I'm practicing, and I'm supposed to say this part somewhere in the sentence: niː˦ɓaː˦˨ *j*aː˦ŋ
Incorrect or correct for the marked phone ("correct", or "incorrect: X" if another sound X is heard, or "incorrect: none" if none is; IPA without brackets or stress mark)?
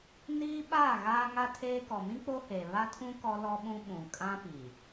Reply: incorrect: ɣ